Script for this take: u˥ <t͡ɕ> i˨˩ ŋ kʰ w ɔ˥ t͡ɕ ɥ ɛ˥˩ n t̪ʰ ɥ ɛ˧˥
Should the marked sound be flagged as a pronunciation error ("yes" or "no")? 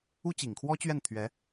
no